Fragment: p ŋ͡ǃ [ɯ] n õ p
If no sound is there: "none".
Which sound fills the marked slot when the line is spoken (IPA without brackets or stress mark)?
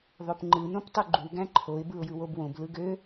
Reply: ɯ